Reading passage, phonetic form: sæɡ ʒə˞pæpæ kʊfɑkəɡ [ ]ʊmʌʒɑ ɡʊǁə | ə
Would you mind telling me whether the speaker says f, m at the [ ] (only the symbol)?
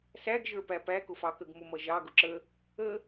m